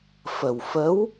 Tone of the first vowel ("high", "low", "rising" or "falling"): low